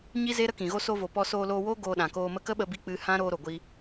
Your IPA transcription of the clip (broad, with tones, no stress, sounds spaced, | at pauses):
ɲ i˦ z e˦ ɾ ə˦ k ĩ˨ ɣ o˧ s o˧ v o˨ p ɔ˧ s oː˧ l oː˧ w oː˦ ɡ oː˧ ɗ ã˨ k oː˧ m ə˧ k ə˦ ɓ ə˧ b i˧ k͡p ɨ˧ h ã˦ ɾ oː˧ ɾ o˨ ɡʷ i˧